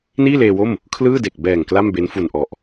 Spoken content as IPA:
n iː˥˩ l eː˧ w o˥˩ m | kʰ l ɯː˥˩ d e˨˩ k̚ b ɛː˨˩ ŋ k l a˥˩ m b e˦˥ n f u˨˩ n ʔ ɔ˨˩ ʔ

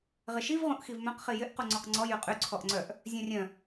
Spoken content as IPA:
ʁ ɪ ʃ i v ʁ ũ ʔ x i v m œ̃ q χ i j ɪ ʔ q u ŋ͡ǀ ɔ q ŋ͡ǀ ɔ j y qʼ y ǀʰ ɔ ʔ ŋ͡ǀ œ ʔ | zʲ œ̃ rʲ œ̃

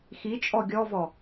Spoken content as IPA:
x i t͡ʃʼ ɔ ɡʲ ɔ v ɔ

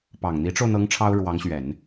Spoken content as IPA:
p ɑ˨˩ ŋ n̪ i˧˥ ʈ͡ʂ o˧ ʊ̯ n̪ ɤ˧˥ ŋ ʈ͡ʂʰ ɑ˥ ʊ̯ ɻ w ɑ˧˥ ŋ ɕ ɥ ɛ˨˩˦ n

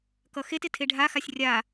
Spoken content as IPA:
k ʌ x e t ɪ tʰ e ɖʱ a x a sʲ rʲ a

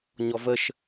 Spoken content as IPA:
ɲ ɔ v ə ʃ

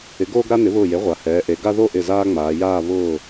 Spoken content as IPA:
ɪ˩˥ ɡ oː˦ ɡ ɾ a˦ n ɪ˩˥ β ʊː˧˩ j e˩˥ ʁʷ a˩˧ h ɛː˩˧ ʔ e˩˧ ɡ a˦ ð o˥˨ ʔ ɪ˧˩ z aː˦ ŋ͡m aː˩˧ j aː˥˨ β ʊː˥˨

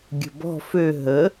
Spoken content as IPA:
ɡʲ ə̤ b ɔ̤ f ø ɦ ə

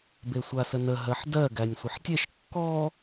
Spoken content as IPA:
b e sʷ a s ə n ə ɦ ɜ ħ d ɜ ɡ æ nʲ sʷ ə ħ tʲ e ʃ kː ɔ

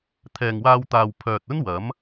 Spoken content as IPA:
t̪ʰ ɛː˨ ŋ w aː˧ w t̪ aː˨ w pʰ œː˨ t̚ ɵ˥ n w ɐ˨˥ m

